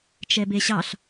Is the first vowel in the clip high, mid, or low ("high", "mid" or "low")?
mid